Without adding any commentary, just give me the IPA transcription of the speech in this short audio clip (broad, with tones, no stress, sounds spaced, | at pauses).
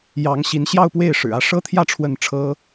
j ɑ˧˥ ŋ ɕ i˧˥ n ɕ j ɑ˥˧ ʊ̯ p w e˥˩ ɪ̯ ʂ ɻ̩˨˩ ä˧˥ ʂ ɤ˥ t̪ʰ j ä˥˧ ʈ͡ʂʰ w ə˥˩ n ʈ͡ʂʰ ɤ˥